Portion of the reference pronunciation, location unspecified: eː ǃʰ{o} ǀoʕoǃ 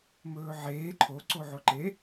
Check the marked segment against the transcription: correct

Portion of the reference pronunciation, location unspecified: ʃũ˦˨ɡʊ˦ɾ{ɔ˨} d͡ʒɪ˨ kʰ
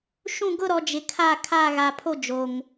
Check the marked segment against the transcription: correct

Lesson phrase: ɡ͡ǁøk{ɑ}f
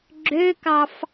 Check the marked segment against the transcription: correct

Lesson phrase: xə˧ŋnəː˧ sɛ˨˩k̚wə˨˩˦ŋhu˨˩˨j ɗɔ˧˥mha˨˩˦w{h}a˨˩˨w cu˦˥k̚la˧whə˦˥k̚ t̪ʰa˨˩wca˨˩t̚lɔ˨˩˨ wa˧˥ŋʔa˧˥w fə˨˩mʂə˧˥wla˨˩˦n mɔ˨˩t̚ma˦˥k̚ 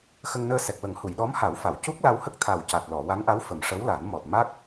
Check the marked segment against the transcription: incorrect: f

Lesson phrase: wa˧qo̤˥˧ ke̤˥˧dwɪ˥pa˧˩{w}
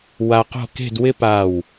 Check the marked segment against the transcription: correct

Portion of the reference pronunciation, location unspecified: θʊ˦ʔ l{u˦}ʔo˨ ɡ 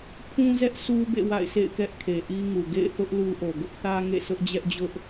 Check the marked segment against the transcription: correct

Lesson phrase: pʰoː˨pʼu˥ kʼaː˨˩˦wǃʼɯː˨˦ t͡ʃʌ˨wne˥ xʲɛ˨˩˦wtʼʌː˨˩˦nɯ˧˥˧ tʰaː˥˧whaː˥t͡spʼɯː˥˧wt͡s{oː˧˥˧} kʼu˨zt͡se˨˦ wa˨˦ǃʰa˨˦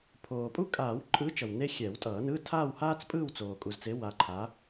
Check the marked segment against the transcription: incorrect: oː˨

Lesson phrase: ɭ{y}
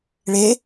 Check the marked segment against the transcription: incorrect: e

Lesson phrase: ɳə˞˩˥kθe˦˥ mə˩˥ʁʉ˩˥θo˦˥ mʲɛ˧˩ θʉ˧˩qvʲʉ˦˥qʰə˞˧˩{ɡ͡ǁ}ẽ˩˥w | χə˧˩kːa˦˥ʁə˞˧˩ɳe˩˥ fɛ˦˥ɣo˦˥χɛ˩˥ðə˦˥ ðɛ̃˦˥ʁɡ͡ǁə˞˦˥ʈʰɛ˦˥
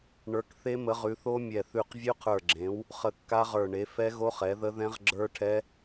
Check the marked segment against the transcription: correct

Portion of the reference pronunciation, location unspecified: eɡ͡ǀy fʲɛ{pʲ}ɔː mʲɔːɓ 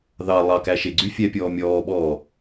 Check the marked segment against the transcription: correct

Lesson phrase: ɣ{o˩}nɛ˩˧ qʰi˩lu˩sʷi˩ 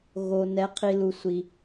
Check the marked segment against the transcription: correct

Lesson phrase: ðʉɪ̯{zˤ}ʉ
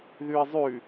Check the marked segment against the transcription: correct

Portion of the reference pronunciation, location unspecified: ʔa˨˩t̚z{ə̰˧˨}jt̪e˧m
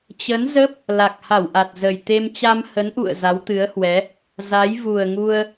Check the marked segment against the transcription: incorrect: ə˨˩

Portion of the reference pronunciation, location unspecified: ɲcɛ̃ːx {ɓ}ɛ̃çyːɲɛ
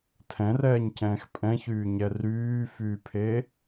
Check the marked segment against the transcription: incorrect: pʼ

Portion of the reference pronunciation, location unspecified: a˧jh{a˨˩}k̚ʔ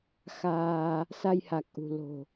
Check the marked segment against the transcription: correct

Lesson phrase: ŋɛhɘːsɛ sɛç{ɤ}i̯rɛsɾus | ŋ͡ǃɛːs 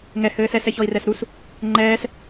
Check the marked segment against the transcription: incorrect: ɔ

